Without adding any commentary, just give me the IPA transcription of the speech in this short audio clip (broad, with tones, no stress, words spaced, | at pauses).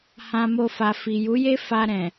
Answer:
hã˧mo˧ fa˨fi˨ ju˨˦je˦ fa˧ ɾɛ̃˨